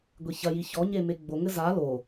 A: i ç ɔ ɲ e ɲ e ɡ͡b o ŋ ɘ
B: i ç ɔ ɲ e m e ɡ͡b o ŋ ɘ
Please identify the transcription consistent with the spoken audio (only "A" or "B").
B